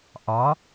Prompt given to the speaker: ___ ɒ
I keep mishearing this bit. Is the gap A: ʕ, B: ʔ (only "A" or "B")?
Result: B